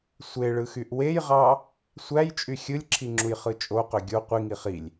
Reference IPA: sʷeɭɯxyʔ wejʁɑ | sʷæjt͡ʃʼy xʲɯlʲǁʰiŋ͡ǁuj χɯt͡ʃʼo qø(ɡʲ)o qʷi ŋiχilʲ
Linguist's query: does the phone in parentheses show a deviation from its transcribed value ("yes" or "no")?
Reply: no